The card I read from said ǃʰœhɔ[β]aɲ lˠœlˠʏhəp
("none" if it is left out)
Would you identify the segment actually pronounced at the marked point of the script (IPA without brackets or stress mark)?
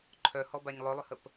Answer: b